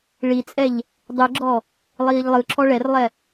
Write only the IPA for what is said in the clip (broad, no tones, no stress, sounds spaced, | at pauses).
ɭ i t͡sʼ ɛ ʎ | dˤ ɯ ɡ͡ǁ ɔ | lˠ iː ʎ lˠ ɯ ǁʰ ɔ ɭ ɛ r lˠ ɛ